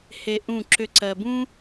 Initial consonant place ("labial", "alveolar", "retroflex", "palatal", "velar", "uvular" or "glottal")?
glottal